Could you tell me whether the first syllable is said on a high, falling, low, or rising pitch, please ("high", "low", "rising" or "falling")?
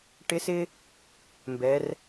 rising